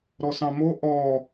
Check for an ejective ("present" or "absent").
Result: absent